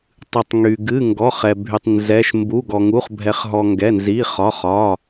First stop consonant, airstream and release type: plain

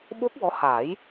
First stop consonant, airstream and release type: implosive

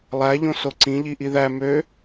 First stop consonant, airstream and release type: click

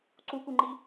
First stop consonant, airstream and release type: click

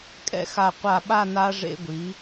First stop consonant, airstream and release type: ejective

